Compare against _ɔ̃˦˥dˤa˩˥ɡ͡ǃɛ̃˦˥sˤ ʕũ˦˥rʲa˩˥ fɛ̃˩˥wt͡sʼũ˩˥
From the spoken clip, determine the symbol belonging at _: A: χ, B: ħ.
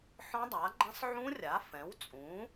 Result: B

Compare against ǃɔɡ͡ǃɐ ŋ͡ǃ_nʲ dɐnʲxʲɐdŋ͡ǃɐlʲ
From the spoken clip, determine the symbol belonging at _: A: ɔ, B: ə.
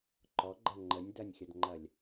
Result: B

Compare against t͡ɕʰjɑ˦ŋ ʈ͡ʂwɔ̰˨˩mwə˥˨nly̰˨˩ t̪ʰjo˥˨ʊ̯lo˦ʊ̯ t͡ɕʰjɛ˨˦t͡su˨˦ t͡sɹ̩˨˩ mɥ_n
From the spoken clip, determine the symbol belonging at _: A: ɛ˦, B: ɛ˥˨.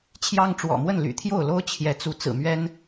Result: A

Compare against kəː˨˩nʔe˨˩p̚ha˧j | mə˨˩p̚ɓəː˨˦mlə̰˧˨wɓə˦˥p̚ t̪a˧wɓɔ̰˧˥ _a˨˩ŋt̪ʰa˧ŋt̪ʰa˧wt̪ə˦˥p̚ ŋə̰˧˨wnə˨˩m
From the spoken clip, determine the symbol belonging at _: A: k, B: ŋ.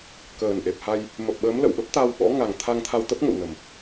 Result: B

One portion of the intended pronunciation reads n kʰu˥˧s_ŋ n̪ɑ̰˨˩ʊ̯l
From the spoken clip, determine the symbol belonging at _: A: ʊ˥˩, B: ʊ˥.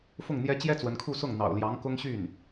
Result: A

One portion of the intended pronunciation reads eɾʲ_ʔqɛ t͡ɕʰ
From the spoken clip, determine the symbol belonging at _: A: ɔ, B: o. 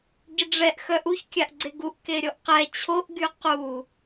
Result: A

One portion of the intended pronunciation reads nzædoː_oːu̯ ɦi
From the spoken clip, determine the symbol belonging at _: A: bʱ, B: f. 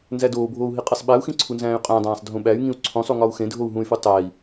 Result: A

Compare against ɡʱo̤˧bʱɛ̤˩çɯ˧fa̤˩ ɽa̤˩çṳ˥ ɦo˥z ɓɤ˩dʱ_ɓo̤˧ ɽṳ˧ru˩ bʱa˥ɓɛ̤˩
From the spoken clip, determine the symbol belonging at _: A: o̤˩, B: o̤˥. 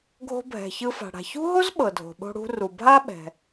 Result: A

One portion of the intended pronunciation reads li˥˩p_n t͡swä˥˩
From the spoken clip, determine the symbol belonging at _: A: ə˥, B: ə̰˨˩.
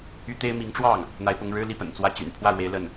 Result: B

